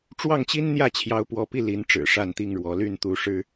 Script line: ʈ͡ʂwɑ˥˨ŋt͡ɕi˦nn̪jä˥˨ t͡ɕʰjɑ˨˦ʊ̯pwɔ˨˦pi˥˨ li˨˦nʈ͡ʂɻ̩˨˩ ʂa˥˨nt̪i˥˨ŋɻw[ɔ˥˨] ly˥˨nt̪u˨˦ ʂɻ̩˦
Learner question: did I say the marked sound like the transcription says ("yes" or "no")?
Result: no